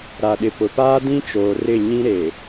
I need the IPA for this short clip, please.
ɾa˨ɗɪ˨pʊ˨ paː˦dĩ˦t͡ʃoː˨ rɪ˦˨ɲĩ˦ ɾe˨

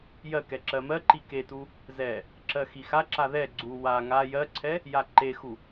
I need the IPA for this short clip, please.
jɜkɛ ǁɜmɜǃi ketu | zɛ | ǁɜxixaǁa ðɛ ɡ͡ǀu wa ŋa jɜǀʰɛ | jaǃexu

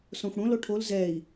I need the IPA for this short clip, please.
sõxʷɽõl oʈʰol zɛi̯

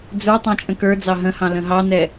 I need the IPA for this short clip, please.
d͡zə˞ tˤɑ̃t͡ʃʼə̃kə˞d͡zɑ ɦə̃hɑ̃ lə̃ɦɑnɛ

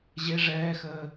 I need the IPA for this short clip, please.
ʑe ʐɛːxəː

